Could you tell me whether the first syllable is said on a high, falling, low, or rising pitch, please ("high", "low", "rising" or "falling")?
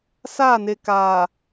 falling